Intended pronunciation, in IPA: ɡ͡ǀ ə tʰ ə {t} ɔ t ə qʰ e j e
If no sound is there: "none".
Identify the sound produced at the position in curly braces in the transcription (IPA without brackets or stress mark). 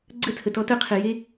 t